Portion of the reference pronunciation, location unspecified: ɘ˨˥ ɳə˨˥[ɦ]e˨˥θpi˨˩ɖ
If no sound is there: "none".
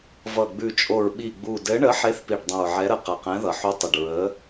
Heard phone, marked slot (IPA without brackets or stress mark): ħ